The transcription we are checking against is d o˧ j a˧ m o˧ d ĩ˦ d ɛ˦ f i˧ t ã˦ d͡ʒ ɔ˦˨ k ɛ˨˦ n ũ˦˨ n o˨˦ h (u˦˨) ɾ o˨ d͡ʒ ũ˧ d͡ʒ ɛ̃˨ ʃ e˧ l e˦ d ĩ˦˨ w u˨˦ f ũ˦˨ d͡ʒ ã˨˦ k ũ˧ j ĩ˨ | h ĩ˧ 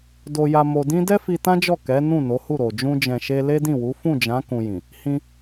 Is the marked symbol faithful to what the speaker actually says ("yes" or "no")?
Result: yes